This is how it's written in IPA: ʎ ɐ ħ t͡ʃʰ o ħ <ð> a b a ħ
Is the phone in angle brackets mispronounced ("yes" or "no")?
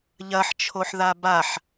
no